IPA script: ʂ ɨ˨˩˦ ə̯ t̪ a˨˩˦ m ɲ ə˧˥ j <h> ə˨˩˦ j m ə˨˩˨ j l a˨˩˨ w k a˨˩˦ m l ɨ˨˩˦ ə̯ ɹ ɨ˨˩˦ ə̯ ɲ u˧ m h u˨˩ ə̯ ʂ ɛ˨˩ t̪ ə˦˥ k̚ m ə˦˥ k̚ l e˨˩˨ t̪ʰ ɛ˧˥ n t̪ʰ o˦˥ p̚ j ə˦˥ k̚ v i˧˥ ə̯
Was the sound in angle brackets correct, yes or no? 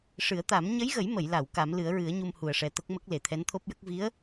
no